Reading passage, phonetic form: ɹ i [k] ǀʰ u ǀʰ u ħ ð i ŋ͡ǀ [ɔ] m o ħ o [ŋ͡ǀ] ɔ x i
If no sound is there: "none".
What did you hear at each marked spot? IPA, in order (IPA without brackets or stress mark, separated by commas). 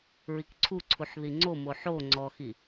k, o, ŋ͡ǀ